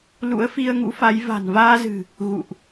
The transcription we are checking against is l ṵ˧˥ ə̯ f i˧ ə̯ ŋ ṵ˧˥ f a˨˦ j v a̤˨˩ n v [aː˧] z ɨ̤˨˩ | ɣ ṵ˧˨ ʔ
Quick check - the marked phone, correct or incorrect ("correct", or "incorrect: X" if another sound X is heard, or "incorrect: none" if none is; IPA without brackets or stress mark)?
correct